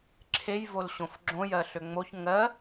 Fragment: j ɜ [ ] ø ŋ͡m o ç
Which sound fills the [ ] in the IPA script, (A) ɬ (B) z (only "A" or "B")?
A